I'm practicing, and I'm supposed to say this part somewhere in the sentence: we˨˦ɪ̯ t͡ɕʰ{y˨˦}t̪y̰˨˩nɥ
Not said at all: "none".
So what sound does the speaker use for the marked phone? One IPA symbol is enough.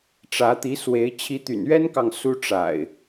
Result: i˨˦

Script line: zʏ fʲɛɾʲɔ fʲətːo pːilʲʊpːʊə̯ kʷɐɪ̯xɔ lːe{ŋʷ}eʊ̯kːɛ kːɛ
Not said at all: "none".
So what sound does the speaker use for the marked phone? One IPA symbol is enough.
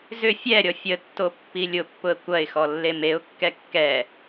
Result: m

